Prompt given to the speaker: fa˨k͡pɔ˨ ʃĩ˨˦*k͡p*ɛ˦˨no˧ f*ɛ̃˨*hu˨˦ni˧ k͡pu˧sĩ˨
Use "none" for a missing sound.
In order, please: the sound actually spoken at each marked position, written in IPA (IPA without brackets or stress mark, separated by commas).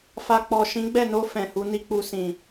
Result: ɡ͡b, ɛ̃˨